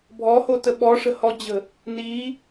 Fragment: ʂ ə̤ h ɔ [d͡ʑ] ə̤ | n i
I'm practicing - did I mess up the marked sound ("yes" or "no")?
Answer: no